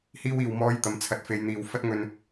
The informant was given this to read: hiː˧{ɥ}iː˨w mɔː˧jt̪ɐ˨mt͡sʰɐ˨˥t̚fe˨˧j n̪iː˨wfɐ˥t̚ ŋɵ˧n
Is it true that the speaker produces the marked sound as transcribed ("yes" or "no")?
no